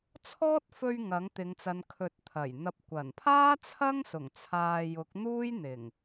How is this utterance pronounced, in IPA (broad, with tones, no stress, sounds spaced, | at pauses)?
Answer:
t͡sʰ ɔː˥ t̚ f ɵ˧ ɥ ŋ ɐ˨˥ ŋ t̪ ɪ˨˧ ŋ t͡s ɐ˨˧ n kʰ ɵ˨ t̚ t̪ʰ ɐ˨˩ j n̪ ɐ˨ p̚ kʷ ɐ˨˩ n pʰ aː˥ t͡sʰ ɐ˥ ŋ s ʊ˨˩ ŋ t͡sʰ aː˨ j ʊ˨˥ k̚ n̪ uː˥ j n̪ ɪ˨˩ ŋ